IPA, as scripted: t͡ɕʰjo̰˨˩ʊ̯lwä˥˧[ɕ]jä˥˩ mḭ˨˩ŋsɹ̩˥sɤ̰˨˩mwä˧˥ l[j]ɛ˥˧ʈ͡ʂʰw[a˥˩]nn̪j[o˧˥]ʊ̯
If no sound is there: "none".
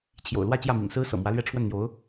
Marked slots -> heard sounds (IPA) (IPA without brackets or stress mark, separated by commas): t͡ɕ, ɥ, ə˥˩, o˧˥